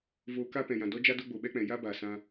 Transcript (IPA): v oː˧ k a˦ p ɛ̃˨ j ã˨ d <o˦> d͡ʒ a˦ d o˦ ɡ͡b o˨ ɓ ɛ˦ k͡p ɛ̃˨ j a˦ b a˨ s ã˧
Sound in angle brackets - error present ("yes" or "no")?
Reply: yes